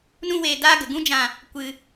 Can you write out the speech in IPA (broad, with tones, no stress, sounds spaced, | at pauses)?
n ũ˦ w eː˧ d aː˦ ɡ ə˨ ɡ ũ˦ d͡ʒ ã˧ | kʷ ɨ˧